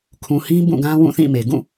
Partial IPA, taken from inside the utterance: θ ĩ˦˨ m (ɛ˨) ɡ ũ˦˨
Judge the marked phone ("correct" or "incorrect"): incorrect